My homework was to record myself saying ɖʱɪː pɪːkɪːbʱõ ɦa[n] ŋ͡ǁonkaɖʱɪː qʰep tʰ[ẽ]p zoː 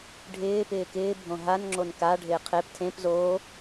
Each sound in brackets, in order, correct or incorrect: correct, correct

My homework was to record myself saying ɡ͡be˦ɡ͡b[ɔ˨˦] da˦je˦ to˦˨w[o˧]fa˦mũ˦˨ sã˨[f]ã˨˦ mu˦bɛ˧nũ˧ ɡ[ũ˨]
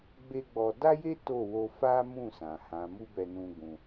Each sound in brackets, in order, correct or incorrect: incorrect, correct, incorrect, incorrect

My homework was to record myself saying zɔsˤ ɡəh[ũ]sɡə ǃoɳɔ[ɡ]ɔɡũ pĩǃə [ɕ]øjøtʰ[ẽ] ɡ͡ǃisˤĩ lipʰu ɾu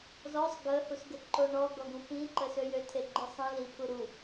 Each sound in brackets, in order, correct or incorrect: incorrect, correct, incorrect, incorrect

